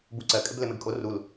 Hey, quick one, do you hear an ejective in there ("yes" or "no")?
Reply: yes